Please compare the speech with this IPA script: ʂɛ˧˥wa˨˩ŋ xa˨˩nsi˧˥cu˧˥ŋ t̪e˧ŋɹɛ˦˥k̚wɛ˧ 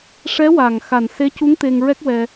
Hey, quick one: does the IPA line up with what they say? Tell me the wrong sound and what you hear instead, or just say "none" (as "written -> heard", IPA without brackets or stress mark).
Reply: i˧˥ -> e˧˥